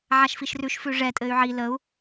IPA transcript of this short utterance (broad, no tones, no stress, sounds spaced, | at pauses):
ʕ a ʃ f i ʃ r ʉ ʃ f ʉ ʐ ɛ tʼ ɘː y̯ ʕ i l ə u̯